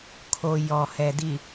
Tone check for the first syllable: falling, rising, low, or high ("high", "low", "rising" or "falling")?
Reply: low